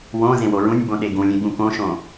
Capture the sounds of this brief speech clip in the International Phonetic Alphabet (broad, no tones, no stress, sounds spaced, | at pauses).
w õ z ẽ w o ɹ ũ nʲ b õ ɗ e ɡ ũ lʲ ẽ ɠ ũ k õ ʃ õ